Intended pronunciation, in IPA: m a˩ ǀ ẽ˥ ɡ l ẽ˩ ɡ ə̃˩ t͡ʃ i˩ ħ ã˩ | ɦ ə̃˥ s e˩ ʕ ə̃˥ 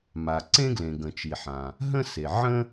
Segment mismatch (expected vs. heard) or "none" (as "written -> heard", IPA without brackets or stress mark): none